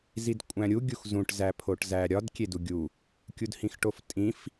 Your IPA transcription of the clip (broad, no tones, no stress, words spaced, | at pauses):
zidkʷʼæ̃ɾʲu ɡʲuxzũʈ zæpʰoʈzæɾʲɒd kʲeduɡʲu | kʲudhĩxʈoftʼĩf